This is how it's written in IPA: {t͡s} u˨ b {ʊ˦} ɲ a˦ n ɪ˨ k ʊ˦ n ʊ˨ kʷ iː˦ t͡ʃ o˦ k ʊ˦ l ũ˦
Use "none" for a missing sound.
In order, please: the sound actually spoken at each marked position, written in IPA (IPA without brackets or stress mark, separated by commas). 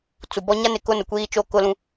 t͡s, ɔ˦